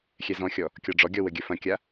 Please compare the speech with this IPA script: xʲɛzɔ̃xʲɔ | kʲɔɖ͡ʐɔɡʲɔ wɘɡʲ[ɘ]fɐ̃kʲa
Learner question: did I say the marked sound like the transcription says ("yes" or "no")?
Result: yes